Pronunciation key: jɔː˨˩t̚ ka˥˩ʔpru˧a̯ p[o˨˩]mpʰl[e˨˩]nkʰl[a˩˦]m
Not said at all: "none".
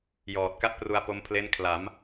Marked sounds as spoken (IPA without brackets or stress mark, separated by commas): o˧, e˦˥, a˩˦